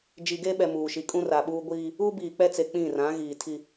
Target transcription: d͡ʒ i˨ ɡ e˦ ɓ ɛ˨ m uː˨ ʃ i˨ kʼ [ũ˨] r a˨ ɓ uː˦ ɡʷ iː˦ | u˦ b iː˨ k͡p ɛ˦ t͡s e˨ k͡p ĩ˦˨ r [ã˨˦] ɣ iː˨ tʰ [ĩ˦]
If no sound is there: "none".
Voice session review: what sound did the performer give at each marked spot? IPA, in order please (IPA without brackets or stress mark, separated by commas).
ũ˦, ã˨˦, i˦